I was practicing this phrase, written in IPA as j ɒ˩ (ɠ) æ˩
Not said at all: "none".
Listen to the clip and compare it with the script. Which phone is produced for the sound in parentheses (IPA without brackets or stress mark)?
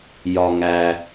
ŋ